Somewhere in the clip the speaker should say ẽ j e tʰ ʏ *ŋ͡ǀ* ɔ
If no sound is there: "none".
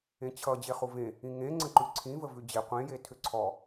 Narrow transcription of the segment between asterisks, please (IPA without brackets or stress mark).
ǀʰ